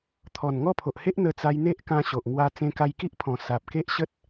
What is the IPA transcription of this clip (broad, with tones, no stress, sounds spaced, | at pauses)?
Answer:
t̪ʰ ɔ˨˩ n ŋ ɔ˥˧ pʰ o˨ ʔ h e˦ ʔ n̪ ə˧ t͡s a˧ j n̪ e˦ ʔ k ã˧ ɕ o˨ ʔ ŋ w a˧ t͡s ẽ˧ k a˧ j k i˦ ʔ pʰ ɔ̃˨˩ s a˨ p̚ k e˦ ʔ ɕ ə˦ t̚